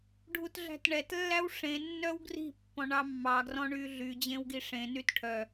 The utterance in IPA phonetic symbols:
ɖʱ u t ɮ æ̤ t ɳ ɛ t lː æ w ʂ ẽ nː œ w ɡ r i̤ pː ɔ̃ ɳ ɑ mː ɑ ɡ r ɔ̃ ɳ y ɮ y d͡ʑ ẽ w ɡ i ʂ ẽ n y t ʈʰ œ

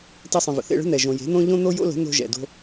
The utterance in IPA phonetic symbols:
t ɛ˧ sˤ ə̃˨ v ə̰˨ θ ḛ˦˨ ɭ ə̤˦ n̪ ɛ˨ ʒ õ˨ j e̤˨˦ n̪ õ˦ ʎ õ˦ n̪ o˦ j o̰˦ l ə̤˨˦ n̪ o̤˧ ʒ ɛ̰˨ d o̤˧

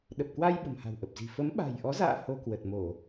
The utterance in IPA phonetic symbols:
ɗ ə˨˩ p̚ k w a˧ j ɓ ə̤˨˩ m h a̤˨˩ w ʔ ə˨˩ p̚ z i̤˨˩ f ə˨˦ m ɓ a̤˨˩ j ʔ ɔ˨˦ z a̰ː˧˨ h o˧ k w ə˨˩ t̚ m o˧˩˨

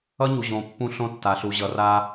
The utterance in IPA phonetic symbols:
ʌ˦ ɲ u˨ ʑ õ˨ pː ũ˦ ɬ õ˦ tː a˨ ɬ u˨ ʑ ʌ˨ r a˦

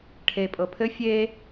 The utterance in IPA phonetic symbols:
ʈʰ e pʼ ɤ pʰ ɘ fʲ e

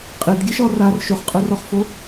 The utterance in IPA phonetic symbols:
qʼ i d ɡʲ ɛ ʃ ɔ r a r ʃ o χ qʼ ɯ r ɔ χ f o

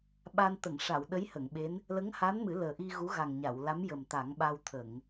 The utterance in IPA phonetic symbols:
ɓ a˧ n t̪ ə˨˩˨ ŋ ʂ a˨˩˨ w ɗ ə˧˥ j h ə˨˩˨ ŋ ɓ e˧˥ n | l ə˧˥ ŋ h a˧˥ n m ɨ˨˩˦ l əː˨˩ ʔ i˧ ɣ u˧˥ ɣ a˨˩ ŋ ɲ a˨˩˨ w l a˧˥ m j ə˨˩ m t̪ a˨˩˦ ŋ ɓ a˧ w t̪ʰ ə˨˩˨ ŋ

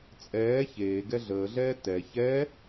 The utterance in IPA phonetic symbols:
t͡sʼ ɛː ç eː ɡ ɛ ɮ əː ɮ ɛː t ɛ ç ɛ

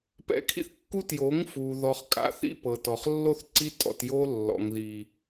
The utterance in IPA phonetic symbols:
p ɛ̰˧ kʰ ḭ˦ θ kː u˦ t j o˨˦ ŋ f u˨ ð ɔ˨ χ kʼ a̰˨ θ ḭ˧ p ɤ˨ t ɔ˨ χ lː o˦ θ ǀ i˦ tʼ ɔ̰˧ t j o˦ lː ɔ̰˨ ŋ ð i˨

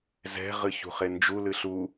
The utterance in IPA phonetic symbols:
z ɛ̤ ʁ ɨ ç ṳ χ e n d͡ʒ u l ɨ ɬ u

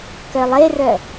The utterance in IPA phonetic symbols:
k œ lˠ e r œ

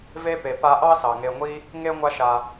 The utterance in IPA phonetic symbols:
v e˥ p e˩ p a˦ ʔ ɑ˥ s ɑ˩ ŋ e˨ ŋʷ i˦ | ŋ e˥ ŋʷ a˦ ʃ a˨

